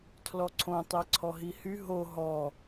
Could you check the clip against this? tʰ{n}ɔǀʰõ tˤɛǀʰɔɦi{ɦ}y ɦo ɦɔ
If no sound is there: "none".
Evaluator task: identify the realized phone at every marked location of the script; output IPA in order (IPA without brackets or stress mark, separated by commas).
l, h